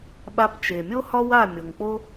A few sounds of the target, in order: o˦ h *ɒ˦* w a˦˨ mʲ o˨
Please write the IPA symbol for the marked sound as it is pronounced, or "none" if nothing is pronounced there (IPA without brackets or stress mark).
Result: ɒ˦